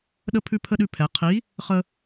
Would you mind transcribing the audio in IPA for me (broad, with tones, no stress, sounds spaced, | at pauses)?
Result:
ɗ ə˥ pʰ ʉ˥ pʰ ə˥ ɗ ʉ˥ pʰ ɛ˧˥ qʰ i˧˥ | χ ə˥